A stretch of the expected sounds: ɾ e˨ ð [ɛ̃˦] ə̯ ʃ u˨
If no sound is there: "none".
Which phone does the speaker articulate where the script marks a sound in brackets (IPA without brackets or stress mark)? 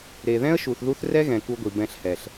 ɛ̃˦